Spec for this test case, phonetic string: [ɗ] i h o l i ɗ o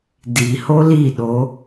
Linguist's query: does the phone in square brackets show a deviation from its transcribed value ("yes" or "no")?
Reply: yes